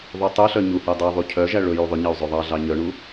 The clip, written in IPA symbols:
ðˤ y tˤ ø ɬ œ ɲ u h ɛ dˤ i ðˤ u cʰ œ ʒ æ ɭ ɵ j u ðˤ ɵ ɲ ɑ u̯ zˤ ø ðˤ ɑ ɮ ɑ ɲ œ ɳ u

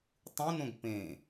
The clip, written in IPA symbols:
tˤ ũ n õ ɡ p ẽ

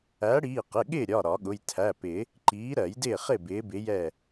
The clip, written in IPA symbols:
æ˨˥ ɽ iː˩˧˩ q ɪ˩˧˩ ɠ ɪː˥˨ ɾʲ ɒ˩˧˩ ɾ ɒ˨˩˦ ɠ ʊ˩˧˩ j tʰ æ˩˧˩ p ɪ˨˩˦ | ǃ iː˨˥ ɾ ɜ˨˩˦ j d ɪː˥˨ χ ɪ˥˨ b ɪː˨˥ b ɪ˨˥ j ɛ˥˨

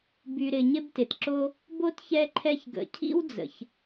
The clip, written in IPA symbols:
b y˨ ɾ ɪ˨ ɲ ɪ˦ b t ɪ˩ t ǁ o˦ | b o˥ t ç ɛ˦ ǃʰ ɛ˦ ç ɡ ə̰˨ cʰ ḭ˥ w d͡z ə̰˩ ç

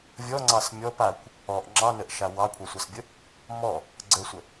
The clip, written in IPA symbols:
vʲ ɔ ŋ͡ǀ ɑ s mʲ ɔ p a kʷ | ɔ ʔ ŋ͡ǁ ɑ n ə ʔ ʃ a w ɑ kʷʰ a sʷ ɑ s bʲ ə | m ɔ | ɡ͡ǀ ə sʷ ə

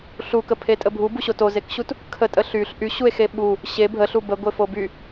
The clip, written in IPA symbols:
ɬ u k ə pʰ e tʼ ə bʱ u b u ɕ o t o z e k ɕ u t | kʰ ə tʼ ə ɬ y ɬ ʔ y ɕ u e̯ x e ɓ u | ɕ e bʱ ə ɬ u b ə ɡʷ e f o b y

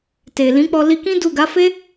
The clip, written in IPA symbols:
t e˨ l ĩ˨˦ k͡p ɔ˧ l i˧ k ĩ˦ d u˦˨ ɡ a˨˦ f e˦

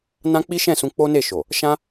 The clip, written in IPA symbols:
n ã˦ k͡p i˦ ʃ ɛ̃˦˨ s ũ˧ k͡p o˦ n e˦˨ ʃ o˨ | ʃ ã˦

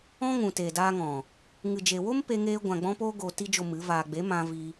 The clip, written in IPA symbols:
ɔ̃˧ ŋ ũ˨ t e˨ d aː˧ ŋ ɔ̃˨ | ŋ ɨ˨ d͡ʒ e˨ w o˦ m p e˧ ŋ eː˧ ɡʷ ã˨ ɡ͡b ɔ̃˧ p oː˦ ɡ oː˨ t i˧ d͡ʒ o˨ m ɨ˨˦ v aː˧ ɡ͡b e˨˦ m ã˧ v i˧

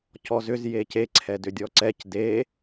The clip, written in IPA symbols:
c ɔ z ʏ z j e c e ǀʰ ɛ d ʏ dʲ ɔ ǀ ɛ c d e

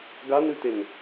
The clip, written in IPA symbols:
ɡ a n ʉ t e n

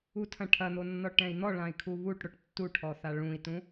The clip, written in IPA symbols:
u tʰ ɐ̃ ʈʰ ɐ n̪ o nː ɔ ʈ ɛ̃ i̯ n̪ ɔ ɭ ã i̯ kʰ u β u ʈ ɽ o ʈ tː u ʈʰ ɔ θ a ɭ ũ i̯ t ũ

